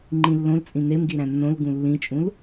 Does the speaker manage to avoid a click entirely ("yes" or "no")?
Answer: no